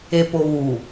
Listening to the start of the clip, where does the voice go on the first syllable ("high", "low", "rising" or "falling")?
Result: low